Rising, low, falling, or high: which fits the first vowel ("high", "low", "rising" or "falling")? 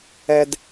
low